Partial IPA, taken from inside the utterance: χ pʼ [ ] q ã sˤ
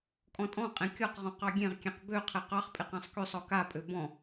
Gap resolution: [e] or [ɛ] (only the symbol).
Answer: e